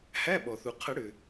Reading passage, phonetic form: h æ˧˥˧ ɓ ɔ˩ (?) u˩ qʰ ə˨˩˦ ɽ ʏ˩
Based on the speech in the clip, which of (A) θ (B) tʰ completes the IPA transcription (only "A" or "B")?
A